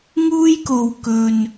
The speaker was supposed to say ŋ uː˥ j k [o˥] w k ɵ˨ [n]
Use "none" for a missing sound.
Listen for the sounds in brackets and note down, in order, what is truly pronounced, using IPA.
o˨, n

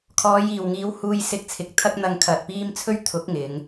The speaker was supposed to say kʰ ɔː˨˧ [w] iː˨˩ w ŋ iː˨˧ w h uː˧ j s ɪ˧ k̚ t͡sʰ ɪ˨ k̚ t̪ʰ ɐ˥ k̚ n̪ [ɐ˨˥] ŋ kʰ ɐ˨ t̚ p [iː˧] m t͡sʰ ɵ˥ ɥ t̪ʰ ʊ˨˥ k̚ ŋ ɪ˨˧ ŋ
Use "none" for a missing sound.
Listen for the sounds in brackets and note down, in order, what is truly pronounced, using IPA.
j, ɐ˧, iː˥

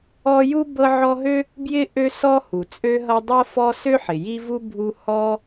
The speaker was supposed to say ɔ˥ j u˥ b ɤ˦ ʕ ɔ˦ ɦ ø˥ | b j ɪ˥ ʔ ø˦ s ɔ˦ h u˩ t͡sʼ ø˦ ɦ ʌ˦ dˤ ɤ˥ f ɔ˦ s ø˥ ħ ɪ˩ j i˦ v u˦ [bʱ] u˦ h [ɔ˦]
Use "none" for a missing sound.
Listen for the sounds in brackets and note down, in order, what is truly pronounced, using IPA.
bʱ, ɔ˦

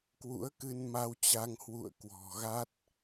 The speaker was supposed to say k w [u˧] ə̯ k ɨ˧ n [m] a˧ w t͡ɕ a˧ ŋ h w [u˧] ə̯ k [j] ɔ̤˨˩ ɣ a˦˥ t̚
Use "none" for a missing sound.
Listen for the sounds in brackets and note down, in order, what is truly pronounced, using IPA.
ṵ˧˥, m, ṵ˧˨, w

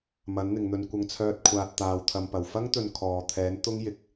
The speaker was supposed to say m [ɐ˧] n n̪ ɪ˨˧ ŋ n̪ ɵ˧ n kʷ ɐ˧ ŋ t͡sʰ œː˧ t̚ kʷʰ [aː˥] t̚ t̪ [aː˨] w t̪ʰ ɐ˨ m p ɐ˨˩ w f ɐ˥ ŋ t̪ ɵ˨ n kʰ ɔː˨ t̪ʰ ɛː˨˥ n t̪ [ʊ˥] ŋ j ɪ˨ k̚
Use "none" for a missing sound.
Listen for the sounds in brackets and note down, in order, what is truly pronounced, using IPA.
ɐ˨˥, aː˨, aː˨, ʊ˥

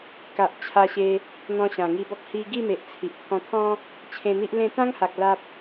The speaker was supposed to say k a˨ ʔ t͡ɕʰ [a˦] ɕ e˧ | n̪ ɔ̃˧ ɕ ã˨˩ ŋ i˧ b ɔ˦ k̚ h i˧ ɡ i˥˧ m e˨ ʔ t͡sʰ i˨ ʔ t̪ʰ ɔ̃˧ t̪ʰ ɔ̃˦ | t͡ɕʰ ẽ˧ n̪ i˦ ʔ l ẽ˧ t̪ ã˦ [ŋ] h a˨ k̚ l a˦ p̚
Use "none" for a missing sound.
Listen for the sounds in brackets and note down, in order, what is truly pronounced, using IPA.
a˧, ŋ

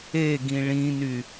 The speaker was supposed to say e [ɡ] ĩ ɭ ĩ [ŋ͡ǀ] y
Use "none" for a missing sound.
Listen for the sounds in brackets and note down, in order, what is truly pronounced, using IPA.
ɡ, n

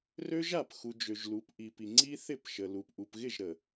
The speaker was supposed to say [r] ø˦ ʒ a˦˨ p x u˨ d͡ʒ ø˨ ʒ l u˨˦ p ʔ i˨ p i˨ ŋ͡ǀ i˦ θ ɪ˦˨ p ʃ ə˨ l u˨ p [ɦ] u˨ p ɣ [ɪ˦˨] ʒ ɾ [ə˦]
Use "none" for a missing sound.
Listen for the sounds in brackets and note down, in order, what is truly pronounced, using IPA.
r, ʔ, ɪ˦˨, ə˨

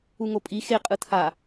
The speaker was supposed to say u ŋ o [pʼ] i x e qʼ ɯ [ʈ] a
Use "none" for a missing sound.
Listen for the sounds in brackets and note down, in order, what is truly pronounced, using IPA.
pʼ, tʰ

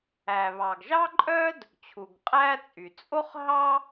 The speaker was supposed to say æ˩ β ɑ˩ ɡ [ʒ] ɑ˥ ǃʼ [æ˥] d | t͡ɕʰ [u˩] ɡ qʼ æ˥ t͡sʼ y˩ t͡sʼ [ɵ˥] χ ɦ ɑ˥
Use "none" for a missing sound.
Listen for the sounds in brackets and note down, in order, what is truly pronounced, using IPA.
ʒ, œ˥, u˩, o˥

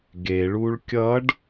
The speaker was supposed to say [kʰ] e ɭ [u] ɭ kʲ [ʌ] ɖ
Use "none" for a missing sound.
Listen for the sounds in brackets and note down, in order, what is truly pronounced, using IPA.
ɡ, u, ʌ

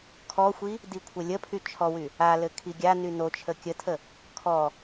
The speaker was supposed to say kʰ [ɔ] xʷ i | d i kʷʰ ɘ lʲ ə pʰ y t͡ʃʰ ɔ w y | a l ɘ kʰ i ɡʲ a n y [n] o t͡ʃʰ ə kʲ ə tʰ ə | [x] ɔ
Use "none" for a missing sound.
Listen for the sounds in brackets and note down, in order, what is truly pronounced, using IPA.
ɔ, n, kʰ

